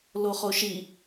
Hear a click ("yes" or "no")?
no